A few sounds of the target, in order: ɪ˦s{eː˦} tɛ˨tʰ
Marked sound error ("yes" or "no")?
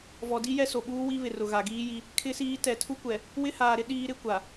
yes